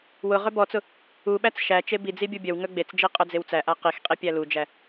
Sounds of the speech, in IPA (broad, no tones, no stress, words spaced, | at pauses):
wʊ ʁœbɔt͡sʊ | uɓæt͡s ʃæ t͡ʃebid͡zi bʲubʲœwŋœ ɡ͡bet͡sd͡ʒi qʼœd͡zewt͡sæʔa qixqʼi pʲælud͡ʒæ